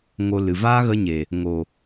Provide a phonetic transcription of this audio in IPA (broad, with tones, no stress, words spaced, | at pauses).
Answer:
ŋo˧ lɨ˨ vaː˦ɣə˧ɲe˨ | ŋo˨